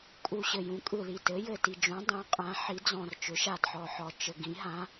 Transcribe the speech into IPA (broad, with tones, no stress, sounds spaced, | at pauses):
kʼ u˨˩ ɕ ɘ˨˩ j ũ˩˥ kʼ ɯ˨˩ l i˨˩ t ɘ˩˥ j ɘ˨˩ t i˨˩ d͡ʒ ũ˩˥ dˤ ũ˩˥ qʼ ã˩˥ ħ i˩˥ d͡z ɔ̃˨˩ r t͡ʃ ʏ˩˥ ʃ a˨˩ d ħ ɔ˨˩ ħ ɔ˨˩ t͡ʃ ɘ˨˩ ɡ ĩ˩˥ ɦ ã˩˥